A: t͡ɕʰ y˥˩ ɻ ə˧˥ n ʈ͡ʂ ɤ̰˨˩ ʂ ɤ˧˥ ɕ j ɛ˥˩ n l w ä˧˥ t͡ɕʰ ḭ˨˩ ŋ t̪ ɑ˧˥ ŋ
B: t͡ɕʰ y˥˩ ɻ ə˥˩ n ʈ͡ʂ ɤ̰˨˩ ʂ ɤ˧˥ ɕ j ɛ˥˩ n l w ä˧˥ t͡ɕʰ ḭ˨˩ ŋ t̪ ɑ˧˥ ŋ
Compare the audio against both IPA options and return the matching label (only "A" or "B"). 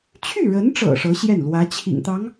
A